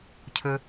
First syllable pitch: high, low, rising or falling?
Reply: low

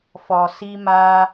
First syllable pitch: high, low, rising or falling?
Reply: low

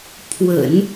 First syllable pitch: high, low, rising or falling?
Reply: low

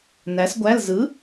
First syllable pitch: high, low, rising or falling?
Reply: rising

